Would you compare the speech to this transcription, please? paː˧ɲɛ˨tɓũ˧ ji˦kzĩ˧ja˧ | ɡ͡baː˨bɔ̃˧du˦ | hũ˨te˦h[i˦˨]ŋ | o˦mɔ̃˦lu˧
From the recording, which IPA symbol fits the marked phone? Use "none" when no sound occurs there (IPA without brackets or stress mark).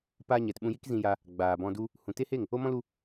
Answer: e˦˨